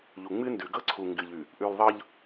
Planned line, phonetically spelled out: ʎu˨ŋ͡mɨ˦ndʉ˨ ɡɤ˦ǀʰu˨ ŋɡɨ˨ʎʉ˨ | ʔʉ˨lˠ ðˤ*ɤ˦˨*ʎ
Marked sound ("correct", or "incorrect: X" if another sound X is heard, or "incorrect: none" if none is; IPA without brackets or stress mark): incorrect: ɤ˦